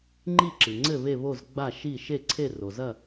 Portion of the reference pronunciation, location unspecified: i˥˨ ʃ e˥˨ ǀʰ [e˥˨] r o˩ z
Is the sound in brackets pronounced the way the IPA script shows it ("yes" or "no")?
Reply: yes